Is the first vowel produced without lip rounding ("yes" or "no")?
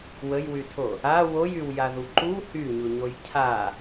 yes